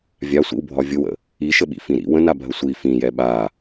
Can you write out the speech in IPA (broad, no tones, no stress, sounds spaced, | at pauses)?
vʲ a sʷ ḭ w bʱ ɒ vʲ ʊ w ə̰ | i ʃ ə ɓ ḭ f ĩ ɾ ḭ w ə̃ n a bʱ ə sʷ i f ĩ j ɛ ɓ a